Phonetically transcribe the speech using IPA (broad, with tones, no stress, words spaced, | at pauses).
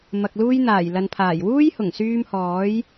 mɐ˨k̚luː˧jn̪aː˨˩j lɐ˨npʰaː˨˩j wuː˥jhʊ˨˩ŋsyː˧mhɔː˨˥j